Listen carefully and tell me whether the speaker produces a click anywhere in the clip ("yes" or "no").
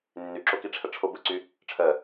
yes